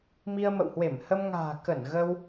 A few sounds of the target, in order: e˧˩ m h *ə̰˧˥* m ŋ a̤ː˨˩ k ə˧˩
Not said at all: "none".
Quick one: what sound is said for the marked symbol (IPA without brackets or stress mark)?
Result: ə˧